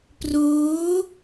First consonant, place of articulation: labial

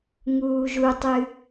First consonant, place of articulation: velar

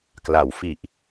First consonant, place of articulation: velar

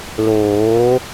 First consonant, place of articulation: alveolar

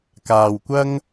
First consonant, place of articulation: velar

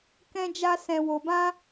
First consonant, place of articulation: velar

